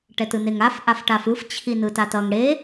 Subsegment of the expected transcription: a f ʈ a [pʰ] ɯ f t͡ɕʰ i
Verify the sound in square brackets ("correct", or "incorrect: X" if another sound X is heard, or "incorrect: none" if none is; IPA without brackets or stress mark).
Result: incorrect: f